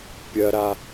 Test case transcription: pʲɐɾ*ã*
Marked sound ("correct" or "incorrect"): incorrect